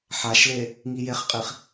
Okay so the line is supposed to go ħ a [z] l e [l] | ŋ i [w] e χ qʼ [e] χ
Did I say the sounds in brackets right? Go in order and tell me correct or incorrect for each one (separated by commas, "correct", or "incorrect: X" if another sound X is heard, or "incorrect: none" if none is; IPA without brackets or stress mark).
incorrect: ʃ, incorrect: none, incorrect: j, incorrect: i